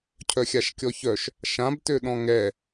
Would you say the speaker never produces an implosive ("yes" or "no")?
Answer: no